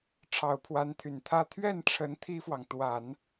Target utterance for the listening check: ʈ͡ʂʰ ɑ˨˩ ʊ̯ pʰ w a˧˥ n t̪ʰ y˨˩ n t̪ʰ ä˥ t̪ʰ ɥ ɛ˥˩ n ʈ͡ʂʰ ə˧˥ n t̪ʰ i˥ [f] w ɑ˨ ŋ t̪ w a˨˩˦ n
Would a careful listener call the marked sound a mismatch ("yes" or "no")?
no